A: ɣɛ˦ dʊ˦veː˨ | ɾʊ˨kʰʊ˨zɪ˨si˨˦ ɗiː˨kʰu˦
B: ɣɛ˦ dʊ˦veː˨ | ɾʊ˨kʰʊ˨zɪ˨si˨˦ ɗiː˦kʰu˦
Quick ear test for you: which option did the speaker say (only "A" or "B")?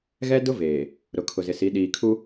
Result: A